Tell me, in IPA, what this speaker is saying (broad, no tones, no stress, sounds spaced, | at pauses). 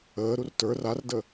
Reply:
əː ɾ u r t ə˞ r a r d ə